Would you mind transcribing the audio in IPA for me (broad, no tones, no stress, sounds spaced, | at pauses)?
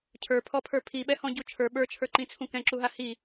cʰ ə˞ pʰ ɔ pʰ ə˞ pʰ i ɓ ɛ h ɔ̃ ɟ u t͡ʃʰ ə˞ ɓ ə˞ t͡ʃʰ ə˞ ǃ ĩ t͡sʰ ũ k ɛ̃ ǁ u ɦ a h i